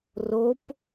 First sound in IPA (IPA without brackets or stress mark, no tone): r